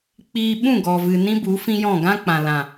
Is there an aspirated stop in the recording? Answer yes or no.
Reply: no